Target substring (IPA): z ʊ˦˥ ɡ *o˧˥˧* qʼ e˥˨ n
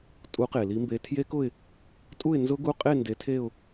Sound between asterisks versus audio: incorrect: u˧˥˧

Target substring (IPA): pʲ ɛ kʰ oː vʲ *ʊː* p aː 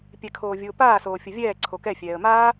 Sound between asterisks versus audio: correct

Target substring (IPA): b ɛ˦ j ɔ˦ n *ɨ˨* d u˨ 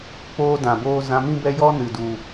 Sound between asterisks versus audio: correct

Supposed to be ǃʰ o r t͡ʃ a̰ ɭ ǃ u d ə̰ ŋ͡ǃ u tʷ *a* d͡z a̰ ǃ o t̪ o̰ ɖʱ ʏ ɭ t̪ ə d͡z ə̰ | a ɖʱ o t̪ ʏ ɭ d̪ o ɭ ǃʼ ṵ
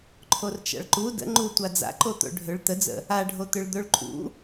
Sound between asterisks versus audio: correct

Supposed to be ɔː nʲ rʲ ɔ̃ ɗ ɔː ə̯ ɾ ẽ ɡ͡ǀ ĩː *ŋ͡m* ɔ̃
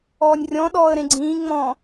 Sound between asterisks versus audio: correct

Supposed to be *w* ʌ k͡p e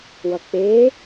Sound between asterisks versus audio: correct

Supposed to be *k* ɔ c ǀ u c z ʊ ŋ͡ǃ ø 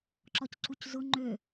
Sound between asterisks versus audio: incorrect: ǁ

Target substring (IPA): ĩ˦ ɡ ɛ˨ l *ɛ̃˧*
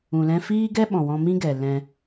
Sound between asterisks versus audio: correct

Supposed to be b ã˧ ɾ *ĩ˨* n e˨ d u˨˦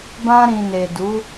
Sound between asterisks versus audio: correct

